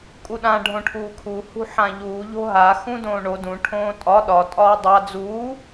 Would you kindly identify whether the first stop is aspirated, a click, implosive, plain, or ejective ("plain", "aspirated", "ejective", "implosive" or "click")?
ejective